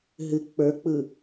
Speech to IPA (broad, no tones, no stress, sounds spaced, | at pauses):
ɦ ɨ k͡p ə˞ k͡p ɯ